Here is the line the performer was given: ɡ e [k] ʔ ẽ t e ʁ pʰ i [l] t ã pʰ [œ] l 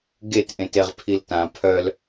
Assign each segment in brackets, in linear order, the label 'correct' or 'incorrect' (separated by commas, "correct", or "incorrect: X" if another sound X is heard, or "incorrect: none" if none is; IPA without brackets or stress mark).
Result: incorrect: t, correct, correct